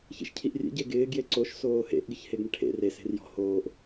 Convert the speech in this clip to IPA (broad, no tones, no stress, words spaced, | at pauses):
çḭʃcʰiʔrʲḛ ɟeɡɪː ɡjeǀoʃ soːhḛʔ ɡɪçheɡɳɪʈʰḛ re se̤rjɔ̤ hoːʔ